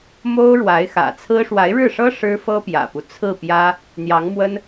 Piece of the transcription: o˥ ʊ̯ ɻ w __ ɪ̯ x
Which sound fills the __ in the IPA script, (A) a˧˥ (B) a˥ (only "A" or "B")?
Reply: A